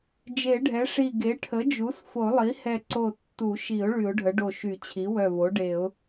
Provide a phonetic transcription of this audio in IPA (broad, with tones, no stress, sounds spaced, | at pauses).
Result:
d͡ʒ e˨˩˦ ɖʱ ɛ˩˥ ʂ i˧˩ ɡ e˩˥ ʈʰ ə˩˥ d͡ʒ u˩˥ s f o˨˩˦ lˠ i˩˥ h ɛ˧˩ ǀ o˧˩ tː u˨˩˦ ʃ i˨˩˦ ʊ̯ ɭ y˨˩˦ ʊ̯ ɖʱ ə˩˥ ɖ o˧˩ ʃ y˨˩˦ t͡ɕʰ i˩˥ w œ˧˩ v o˩˥ ɖ e˨˩˦ ʊ̯